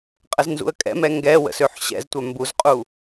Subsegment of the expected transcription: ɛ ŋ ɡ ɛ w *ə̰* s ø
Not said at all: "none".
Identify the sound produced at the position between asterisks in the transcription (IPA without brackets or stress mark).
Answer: ə̰